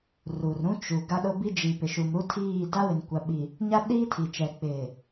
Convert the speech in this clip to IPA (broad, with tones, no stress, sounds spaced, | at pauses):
r u˨ r ɾ ũ˦ t͡ʃ u˨ ɡ a˦ ɗ ʊ˦ b i˦ d͡ʒ i˨ p ɪ˨ ʃ u˨ m ɾ u˦ tʰ iː˦˨ d a˦ w ɪ˨ n kʷ a˨ ɓ i˨ | ɲ a˦ ɗ iː˦ tʰ i˨ t͡ʃ ɛ˨ k͡p ɪ˨